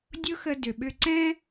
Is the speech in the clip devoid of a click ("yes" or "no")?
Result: no